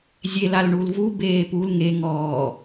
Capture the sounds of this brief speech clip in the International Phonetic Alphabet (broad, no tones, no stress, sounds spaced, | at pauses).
zʲ e l a l ɳ u l v u b eː p u l ŋ e ŋ ɔː